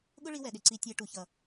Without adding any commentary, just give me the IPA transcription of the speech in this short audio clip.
ɠ ʊ˦ ɭ i˧ w ɛ˨ ɗ ɪ˨ ǀ i˧ tʲ æ˧ ʈ u˨ ç ʌ˨

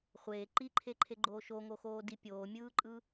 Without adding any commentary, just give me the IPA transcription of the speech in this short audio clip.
χʷ eː ǃ i ǃʰ e ǃʰ e ɡ͡ǃ oː ʃ o ŋ o x oː d i pʲ oː mʲ ɯː ǃʼ ɯ

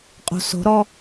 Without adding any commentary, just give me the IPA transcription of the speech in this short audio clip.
qʼ o̤ s o̤ ɾ ɔ

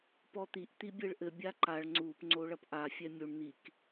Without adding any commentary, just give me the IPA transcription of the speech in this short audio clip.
p ɔ t̪ i ʔ t̪ i bʲ e ɭ ʔ ɘ bʲ a ǃ a ɭ ŋ͡ǀ u p ŋ͡ǀ o ɭ ɐ p ʔ a fʲ ɛ mʲ u ɳ n̪ i k

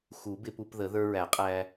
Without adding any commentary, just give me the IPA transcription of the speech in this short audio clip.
x u˨˩˦ b ɪ˧ p u˧ p ð ə˨˩˦ ð ə˞˧ ɹ æ˨˩˦ qʼ æ˧

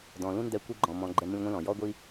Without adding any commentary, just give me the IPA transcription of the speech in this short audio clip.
d ɔ̃˨ l ũ˦ n d ɛ˧ kʷ i˧ ɡ͡ǃ ɔ̃˨ m ɔ̃˨ ɡ͡ǃ ɛ˧ m ũ˧ lʲ ŋʷ ĩ˧ l ɔ̃˨ j ɔ˧ ɡʷ i˧

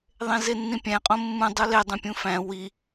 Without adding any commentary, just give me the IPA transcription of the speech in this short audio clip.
ðˤ ẽ z e nː ĩ pʲ æ̃ qʼ õ mː ũ dˤ u l e dˤ ũ pʲ ũ f æ̃ w i

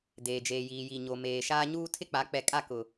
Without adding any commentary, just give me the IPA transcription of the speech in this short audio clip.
d eː˨ d͡ʒ eː˨ j iː˨ j i˨ ɲ o˨ m eː˨ ʃ aː˦ ɲ uː˦ tʰ ɪ˦ k͡p a˨˦ k͡p ɛ˨ kʼ a˦˨ k ʊ˨

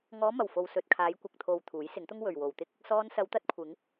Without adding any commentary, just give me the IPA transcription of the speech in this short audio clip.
ŋ ɔː˨˧ m ɐ˨˩ w f o˨ w s ɵ˨ t̚ kʰ aː˨˧ j kʷ ɐ˨ k̚ t̪ʰ o˨ w t̪ʰ uː˨˥ j s ɪ˨˥ ŋ t̪ ʊ˥ ŋ w ɵ˨ ɥ w o˨ w t̪ ɪ˥ k̚ | s ɔː˧ n s ɐ˨˧ w t̪ ɐ˧ t̚ kʷʰ ɪ˨˧ ŋ

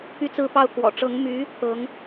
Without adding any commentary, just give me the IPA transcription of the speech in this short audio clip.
p y˥˩ t͡s ɹ̩˥ p ɑ˥ ʊ̯ k w ɔ̰˨˩ ʈ͡ʂ ɤ˧˥ ŋ m y˧˥ | t̪ ɤ˧˥ ŋ

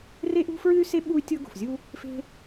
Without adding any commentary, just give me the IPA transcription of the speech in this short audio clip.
r e˥ ʔ ṳ˥ f ɹ ɨ˥ y̯ s e˥ ɓ u˥ y̯ tʲ ɤ˥ ɡ o̤˩ f zʲ u˥ | f e̤˥

